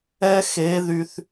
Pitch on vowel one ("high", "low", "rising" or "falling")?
high